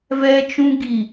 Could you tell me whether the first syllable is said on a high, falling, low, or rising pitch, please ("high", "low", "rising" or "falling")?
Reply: high